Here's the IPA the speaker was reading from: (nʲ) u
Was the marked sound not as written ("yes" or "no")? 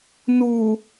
yes